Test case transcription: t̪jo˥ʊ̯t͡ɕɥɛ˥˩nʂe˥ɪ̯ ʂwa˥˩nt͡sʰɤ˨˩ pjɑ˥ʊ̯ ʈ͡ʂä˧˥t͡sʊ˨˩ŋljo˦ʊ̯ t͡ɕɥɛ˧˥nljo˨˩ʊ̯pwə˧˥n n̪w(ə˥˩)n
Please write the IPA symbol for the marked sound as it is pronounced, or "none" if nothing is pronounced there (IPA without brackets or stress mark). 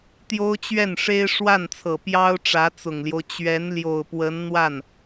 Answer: a˥˩